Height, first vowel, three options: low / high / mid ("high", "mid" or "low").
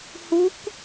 high